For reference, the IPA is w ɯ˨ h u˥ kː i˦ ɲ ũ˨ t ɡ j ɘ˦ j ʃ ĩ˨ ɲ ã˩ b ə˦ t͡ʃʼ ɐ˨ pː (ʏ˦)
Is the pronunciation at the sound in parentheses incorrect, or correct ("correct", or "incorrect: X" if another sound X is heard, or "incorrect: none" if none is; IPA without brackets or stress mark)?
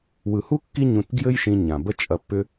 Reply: correct